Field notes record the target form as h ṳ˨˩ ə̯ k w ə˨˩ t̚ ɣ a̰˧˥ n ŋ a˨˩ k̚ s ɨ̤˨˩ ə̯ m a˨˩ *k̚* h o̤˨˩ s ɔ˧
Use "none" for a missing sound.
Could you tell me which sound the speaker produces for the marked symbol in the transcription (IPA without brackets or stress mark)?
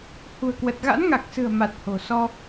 t̚